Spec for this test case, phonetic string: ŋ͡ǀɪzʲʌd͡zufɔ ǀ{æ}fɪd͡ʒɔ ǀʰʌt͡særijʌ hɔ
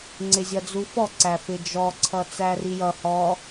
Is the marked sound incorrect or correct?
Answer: correct